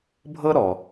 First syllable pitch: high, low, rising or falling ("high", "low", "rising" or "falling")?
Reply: high